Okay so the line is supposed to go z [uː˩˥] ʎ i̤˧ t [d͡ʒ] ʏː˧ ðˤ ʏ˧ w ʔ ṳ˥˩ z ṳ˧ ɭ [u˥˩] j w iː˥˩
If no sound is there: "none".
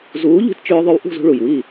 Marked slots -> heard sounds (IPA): uː˩˥, t͡ʃ, u˩

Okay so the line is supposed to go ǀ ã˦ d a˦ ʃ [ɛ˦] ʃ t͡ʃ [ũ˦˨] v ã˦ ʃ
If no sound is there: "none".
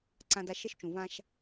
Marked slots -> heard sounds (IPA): ɛ˦, ũ˨

